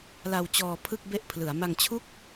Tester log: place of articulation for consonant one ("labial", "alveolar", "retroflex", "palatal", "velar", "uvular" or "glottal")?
alveolar